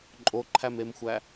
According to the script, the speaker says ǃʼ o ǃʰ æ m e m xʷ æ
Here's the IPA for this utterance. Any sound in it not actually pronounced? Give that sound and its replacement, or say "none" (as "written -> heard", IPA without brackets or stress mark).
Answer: none